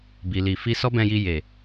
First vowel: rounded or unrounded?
unrounded